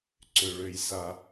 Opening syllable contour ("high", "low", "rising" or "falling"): low